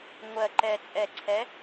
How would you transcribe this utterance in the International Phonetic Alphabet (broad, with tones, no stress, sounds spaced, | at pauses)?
ŋʷ ɜ˨˩ ǃ ɛ˨˩ t͡sʼ ɛ˨˩ ǀʰ ɛ˨˥